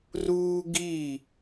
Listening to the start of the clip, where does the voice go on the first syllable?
high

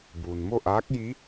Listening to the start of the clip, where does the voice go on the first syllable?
low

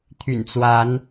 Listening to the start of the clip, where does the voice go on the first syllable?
low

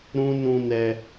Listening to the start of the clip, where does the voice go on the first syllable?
high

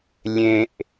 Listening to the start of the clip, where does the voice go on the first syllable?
high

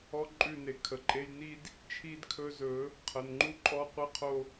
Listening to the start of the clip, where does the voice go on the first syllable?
high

